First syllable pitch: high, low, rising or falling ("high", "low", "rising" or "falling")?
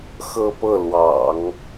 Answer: falling